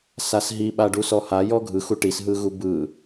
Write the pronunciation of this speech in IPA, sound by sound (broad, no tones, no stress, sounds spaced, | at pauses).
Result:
s a s ɦ i ɓ a ɖ u s ɔ h a j ɔ ɡʱ ɯ x u ʈ i s ɦ ɯ ɣ u b ɯ